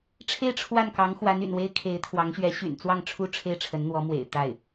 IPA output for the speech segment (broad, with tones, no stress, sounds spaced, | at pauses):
ʈ͡ʂʰ e˥˧ ɪ̯ ʈ͡ʂʰ w a˥˩ n k ɑ˧˥ ŋ x w a˧˥ n y̰˨˩ n w e˥ ɪ̯ kʰ e˧˥ ɪ̯ t̪ʰ w ɑ˧˥ ŋ ɕ ɥ ɛ˧˥ ɕ y̰˨˩ n t͡s w ɑ˥˩ ŋ ʈ͡ʂʰ u˥ ʈ͡ʂʰ e˥˩ ɪ̯ ʈ͡ʂʰ ə˧˥ n n̪ w ɔ˧˥ m w ḛ˨˩ ɪ̯ t̪ a˥˩ ɪ̯